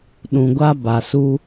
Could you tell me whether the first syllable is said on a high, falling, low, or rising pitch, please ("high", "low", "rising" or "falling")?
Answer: low